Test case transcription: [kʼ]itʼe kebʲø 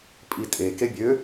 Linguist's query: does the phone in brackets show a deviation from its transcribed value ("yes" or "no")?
yes